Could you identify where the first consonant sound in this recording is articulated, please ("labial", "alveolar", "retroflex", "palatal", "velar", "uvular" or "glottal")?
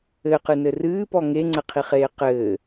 uvular